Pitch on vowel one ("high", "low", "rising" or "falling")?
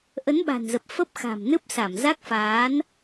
rising